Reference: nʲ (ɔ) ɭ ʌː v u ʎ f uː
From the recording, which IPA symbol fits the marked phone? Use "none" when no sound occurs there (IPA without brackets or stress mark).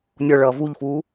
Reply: ɔ